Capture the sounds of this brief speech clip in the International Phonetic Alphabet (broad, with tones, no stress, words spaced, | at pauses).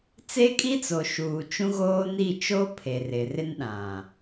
t͡se˦kʼi˦t͡so˨ʃuː˨ t͡ʃũ˦ɣoː˦ni˦˨ t͡ʃo˦ pʰe˨rɪ˨rɪ˦nɗã˨